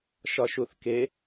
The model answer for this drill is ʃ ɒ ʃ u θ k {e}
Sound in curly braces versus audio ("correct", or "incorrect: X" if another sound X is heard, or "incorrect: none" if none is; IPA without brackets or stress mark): correct